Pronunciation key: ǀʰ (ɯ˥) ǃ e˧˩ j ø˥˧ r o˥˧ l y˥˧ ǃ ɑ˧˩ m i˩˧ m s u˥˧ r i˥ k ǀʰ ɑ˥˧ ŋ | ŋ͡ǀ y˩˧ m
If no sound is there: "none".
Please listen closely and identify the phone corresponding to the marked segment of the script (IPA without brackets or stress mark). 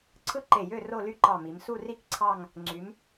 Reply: ɯ˥